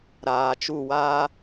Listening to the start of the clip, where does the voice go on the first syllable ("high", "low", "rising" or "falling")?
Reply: low